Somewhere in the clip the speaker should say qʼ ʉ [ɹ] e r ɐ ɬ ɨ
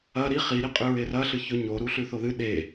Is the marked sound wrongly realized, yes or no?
no